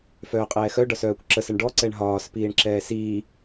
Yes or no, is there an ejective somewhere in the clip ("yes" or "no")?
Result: yes